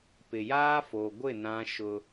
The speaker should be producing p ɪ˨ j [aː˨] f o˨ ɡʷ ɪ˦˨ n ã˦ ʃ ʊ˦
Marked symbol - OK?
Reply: no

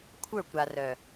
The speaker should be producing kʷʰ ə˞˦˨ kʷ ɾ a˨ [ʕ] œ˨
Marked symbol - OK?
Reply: no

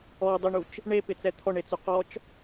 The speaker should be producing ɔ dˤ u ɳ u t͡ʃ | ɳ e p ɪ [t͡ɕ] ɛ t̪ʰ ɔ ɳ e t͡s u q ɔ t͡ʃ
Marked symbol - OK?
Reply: no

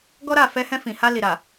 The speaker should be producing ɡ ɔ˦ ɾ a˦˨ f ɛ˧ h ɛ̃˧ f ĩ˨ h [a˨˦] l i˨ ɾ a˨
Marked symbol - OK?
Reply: no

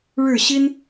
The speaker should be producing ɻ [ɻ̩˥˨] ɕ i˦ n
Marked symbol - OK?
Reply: yes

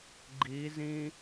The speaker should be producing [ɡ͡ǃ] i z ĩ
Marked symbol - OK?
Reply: yes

